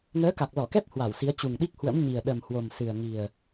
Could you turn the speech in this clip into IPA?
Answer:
ŋ əː˨˦ k a˨˩ k̚ l ɔ˧˩ k ɛ˦˥ p̚ h w a˧˩ w s i˨˦ ə̯ t͡ɕ u˨˩ ŋ ɗ i˦˥ k̚ h w ə̰˧˥ m ɲ i˨˩ ə̯ ɗ ə˨˩ m h w o˨˩ m s ɨ˨˩ ə̯ ŋ i˨˩ ə̯

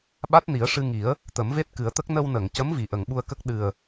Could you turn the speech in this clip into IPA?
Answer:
ɓ a˦˥ t̚ n i˨˩˦ ə̯ ʂ ɨ˧ ŋ i˨˩˦ ə̯ | t̪ ə˨˩˦ m v e˦˥ t̚ k ɨ˨˩˦ ə̯ t̪ ə˦˥ k̚ n ə˧ w n ə˨˩˨ ŋ c ə˧˥ m v i˨˩ ʔ ə˨˩˨ ŋ ɓ u˧ ə̯ k ə˦˥ k̚ ɗ ɨ˨˩ ə̯

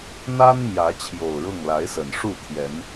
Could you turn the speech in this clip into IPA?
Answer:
n̪ a˦ n m j ä˨˦ t͡ɕʰ j o˨˩ ʊ̯ ɻ ʊ˥˨ ŋ l a˨˦ ɪ̯ s ə˨˩ n ʂ u˥˨ t̪ʰ j ɛ˨˦ n

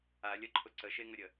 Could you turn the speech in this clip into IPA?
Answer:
a lʲ ɐ ǃʰ ʊ ǀ ə ʃ e ŋ ə ɾʲ ə

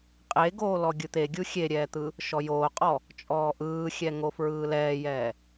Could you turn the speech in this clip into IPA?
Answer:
qʼ e ɡ oː l ɔ ɡʲ ɯ t̪ e ɡʲ u xʲ e ɾʲ ɛː t̪ ɯ | ʃ ɔ j oː qʼ ɔ | t͡ʃʼ ɔː ʔ ɯː xʲ ɛ ŋ o f ɹ ɯː l ɛː j ɛː

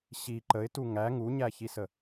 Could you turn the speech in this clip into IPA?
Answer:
ɕ i ǃ ə ɪ̯ t u ŋ æ ŋ u ɲ æ ç i s ə

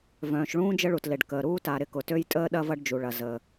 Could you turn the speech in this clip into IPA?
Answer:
v œ̃ː˩ ʃ ɭ ũː˥ d͡ʒ ə˥ ɭ u˩ t l e˩ ɖ k əː˩ ɾ uː˥ t a˩ ɾ ɪ˥ k ʊ˩ t ø˥ j tʼ əː˥ ɗ ɐ˥ v ɐ˥ ɖ d͡ʒ u˩ ɭ ɐ˩ z əː˩

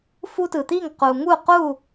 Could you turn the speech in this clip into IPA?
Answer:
f u˦ t ɯ˩ t̪ i˥˩ ŋ q u˩ ŋ u˥˩ q u˥˩

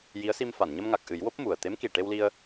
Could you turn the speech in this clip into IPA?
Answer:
j i˧˥ ə̯ s i˧ m f a˨˩˨ n ɲ ə˧ m ŋ a˨˩ k̚ ʔ ɨ˨˩˦ j w o˦˥ p̚ m u˨˩ ə̯ t̪ e˧˥ m k i˨˩ ʈ e˧ w l i˧ ə̯

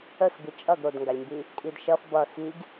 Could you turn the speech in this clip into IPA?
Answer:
ə x b i t͡ʃʼ ʌ ɡ ɾ o d ŋ ɡ a lʲ m b i | kʼ i d ʃ ʌ f b ʌ x i ɡ

